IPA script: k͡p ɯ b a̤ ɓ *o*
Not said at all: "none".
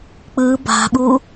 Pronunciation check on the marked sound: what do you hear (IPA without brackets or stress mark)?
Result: u